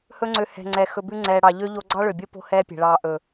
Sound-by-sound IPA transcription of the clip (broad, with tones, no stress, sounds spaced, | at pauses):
h ɵ˦ ŋ͡ǀ ø˧ h ɛ̤˨ ŋ͡ǀ ɛ˨ x ɵ˧ b ʉ˦ ŋ͡ǀ ɛː˧ ɽ ɑ˧ ʎ ø˦ ʎ o˦ ɡ͡ǀ ɑ˦ ɭ ø˨ bʲ o˦ p o̤˦ h ɛː˦ pʲ ɛ̤˨ ɭ ɑː˧ ʔ ɵ˨